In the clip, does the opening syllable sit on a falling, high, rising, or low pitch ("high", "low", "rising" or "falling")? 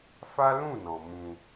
high